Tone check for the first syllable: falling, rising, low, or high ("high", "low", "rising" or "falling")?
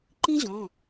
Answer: high